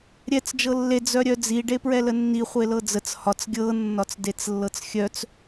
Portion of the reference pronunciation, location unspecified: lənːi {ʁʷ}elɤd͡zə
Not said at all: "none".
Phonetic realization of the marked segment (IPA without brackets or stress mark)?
χʷ